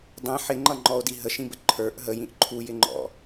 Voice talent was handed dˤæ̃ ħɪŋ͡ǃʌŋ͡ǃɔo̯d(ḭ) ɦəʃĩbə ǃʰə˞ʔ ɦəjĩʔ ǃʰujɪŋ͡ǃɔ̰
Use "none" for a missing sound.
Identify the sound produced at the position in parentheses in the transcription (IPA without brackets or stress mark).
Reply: i